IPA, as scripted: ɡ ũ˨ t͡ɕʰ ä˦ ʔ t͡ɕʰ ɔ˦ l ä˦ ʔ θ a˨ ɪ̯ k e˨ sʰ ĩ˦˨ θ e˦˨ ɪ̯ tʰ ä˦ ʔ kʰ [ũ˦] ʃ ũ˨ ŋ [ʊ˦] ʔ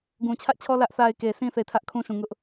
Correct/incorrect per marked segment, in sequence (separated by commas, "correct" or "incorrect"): correct, correct